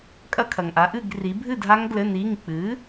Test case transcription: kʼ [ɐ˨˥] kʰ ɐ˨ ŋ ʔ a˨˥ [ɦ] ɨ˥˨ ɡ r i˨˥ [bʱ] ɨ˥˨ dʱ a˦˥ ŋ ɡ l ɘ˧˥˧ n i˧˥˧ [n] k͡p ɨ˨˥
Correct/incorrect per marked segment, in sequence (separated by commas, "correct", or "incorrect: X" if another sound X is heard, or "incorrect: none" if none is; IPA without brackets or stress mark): incorrect: ɐ˦˥, incorrect: ʔ, correct, incorrect: ŋ